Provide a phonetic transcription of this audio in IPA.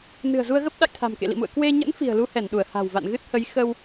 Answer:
n ɨ̤˨˩ ə̯ z u˧ ə̯ ɣ ə˦˥ p̚ ɗ a̰˧˨ j t̪ʰ a̤˨˩ m k ḛ˧˨ l ḭ˧˨ m ṵ˧˨ ə̯ k w e˧ ɲ ə̰˧˥ n f i̤˨˩ ə̯ l u˧ h ɛ˧˩ n ɗ u˧˩ ə̯ h a̤˨˩ w v a̰˧˨ n ɣ ɨ˦˥ t̚ h ə˨˦ j x ə˧ w

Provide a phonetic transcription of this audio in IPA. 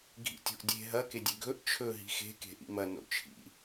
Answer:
ɡʱ ḭ tʲ o̤ ʔ dʲ e̤ ɦ ɐ k e dʲ e ɡʱ ɵ ʔ t͡ʃʰ ɵ ɦ i̤ x e̤ k e̤ ʔ ḭ m ɐ n o̰ t͡ʃʰ ḭ

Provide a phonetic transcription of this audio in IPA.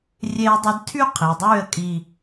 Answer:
rʲ e˦ ə̯ dˤ ɨ˦ d tʰ y˦ qʰ e˨ dˤ yː˦˨ ə̯ kʼ i˨

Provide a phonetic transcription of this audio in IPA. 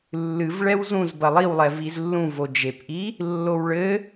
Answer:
lː ɨ v ɭ ɛ w z ũ z b ɐ lˠ i w lˠ ɛ v i z lː ũ v o d͡ʒ e p ʔ i | lː o w ɭ ɘ

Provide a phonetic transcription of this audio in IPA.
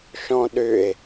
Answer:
ʃ ɔ̃ ɗ ʏ e̯

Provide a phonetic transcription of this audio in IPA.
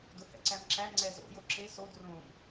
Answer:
d ʊ h ɛ̰ ǀ æ m ǁ æ ŋ͡ǀ ɛ z o̰ j o ǁ e s o d r õ m

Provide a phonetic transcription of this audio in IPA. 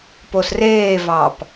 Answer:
p o s r eː v ɑ p

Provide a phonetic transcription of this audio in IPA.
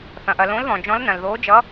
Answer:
θ ɐ̃˩ ʔ ɐ˩ l õ˨˦ l ð ɔ̃˩ d͡ʒ ɔ̃˨˦ l n ɐ̃˩ l ð oː˨˦ d͡ʒ ʌ˨˦

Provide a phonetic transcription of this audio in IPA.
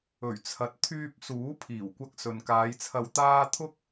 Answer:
ɵ˨˩ ɥ t͡sʰ ɐ˨ t̚ t̪ʰ yː˧ p̚ s uː˨˥ pʰ iː˨˩ w kʷ ɐ˧ k̚ s ɵ˨ n k aː˨˧ j t͡sʰ ɐ˧ w t̪ aː˥ t̪ʰ ʊ˥ k̚

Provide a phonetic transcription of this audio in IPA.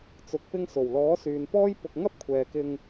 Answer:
t͡s ʊ˨ k̚ p ɪ˧ ŋ s o˨˩ w l ɔː˨˥ s yː˨ n p ɔː˥ j p ʊ˧ k̚ ŋ ɐ˥ p̚ kʷʰ ɛː˨ k ɪ˧ ŋ

